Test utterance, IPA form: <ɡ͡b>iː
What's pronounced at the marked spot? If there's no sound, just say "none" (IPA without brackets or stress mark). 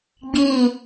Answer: ɡ͡b